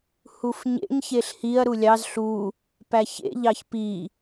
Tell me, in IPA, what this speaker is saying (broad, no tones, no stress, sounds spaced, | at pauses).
h u f ɲ ḛ ɲ ç e ɬ h i ɐ̯ ɾ u lʲ ɑ z ɬ u | p æ ç ḛ ʎ ɑ ç p i